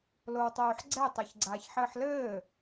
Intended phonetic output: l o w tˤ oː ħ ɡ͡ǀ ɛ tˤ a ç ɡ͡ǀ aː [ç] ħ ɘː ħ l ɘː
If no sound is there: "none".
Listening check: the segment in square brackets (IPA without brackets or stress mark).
ç